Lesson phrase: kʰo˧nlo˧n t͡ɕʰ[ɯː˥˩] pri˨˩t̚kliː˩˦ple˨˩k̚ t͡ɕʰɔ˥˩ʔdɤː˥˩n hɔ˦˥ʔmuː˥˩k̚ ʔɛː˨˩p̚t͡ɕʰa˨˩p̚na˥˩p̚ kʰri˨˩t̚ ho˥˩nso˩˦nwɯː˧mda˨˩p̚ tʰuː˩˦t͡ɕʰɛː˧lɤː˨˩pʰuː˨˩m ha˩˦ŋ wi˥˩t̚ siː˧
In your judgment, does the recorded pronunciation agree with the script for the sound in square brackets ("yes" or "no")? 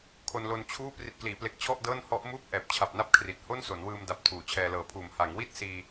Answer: no